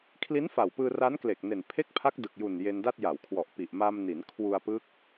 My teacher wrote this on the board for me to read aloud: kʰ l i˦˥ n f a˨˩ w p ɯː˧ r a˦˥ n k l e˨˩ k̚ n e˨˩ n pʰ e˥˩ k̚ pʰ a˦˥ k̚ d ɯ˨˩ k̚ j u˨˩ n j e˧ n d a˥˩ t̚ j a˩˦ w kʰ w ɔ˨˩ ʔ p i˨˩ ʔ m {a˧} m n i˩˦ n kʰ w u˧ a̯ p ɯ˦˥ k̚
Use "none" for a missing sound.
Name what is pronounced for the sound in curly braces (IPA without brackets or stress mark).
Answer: a˧